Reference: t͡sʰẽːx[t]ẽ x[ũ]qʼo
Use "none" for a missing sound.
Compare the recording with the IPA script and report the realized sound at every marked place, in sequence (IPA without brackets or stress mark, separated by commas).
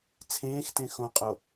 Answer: t, õ